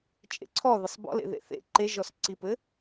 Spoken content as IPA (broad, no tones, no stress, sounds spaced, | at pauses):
t͡ʃʼ ḛ ǀʰ ɔ ð ɘ sˤ b ɔ̰ l ḛ ð ḛ θ ḛ ǃ e ʒ ɔ s ǀ i p ɘ